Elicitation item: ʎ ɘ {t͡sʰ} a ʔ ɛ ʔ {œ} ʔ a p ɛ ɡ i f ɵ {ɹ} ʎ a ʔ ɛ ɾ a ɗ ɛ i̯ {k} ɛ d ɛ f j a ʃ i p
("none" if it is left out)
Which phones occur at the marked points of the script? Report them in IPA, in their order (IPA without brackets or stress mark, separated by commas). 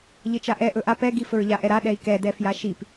t͡ʃ, ɵ, ɹ, k